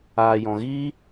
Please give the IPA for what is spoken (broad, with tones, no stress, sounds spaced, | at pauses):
aː˨ j ɔ̃˨ ɣ iː˦